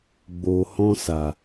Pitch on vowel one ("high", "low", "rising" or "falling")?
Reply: low